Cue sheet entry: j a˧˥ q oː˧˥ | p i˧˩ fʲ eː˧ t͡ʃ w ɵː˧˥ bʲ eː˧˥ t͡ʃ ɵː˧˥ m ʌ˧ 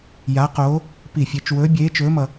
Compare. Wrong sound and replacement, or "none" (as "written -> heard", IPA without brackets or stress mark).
none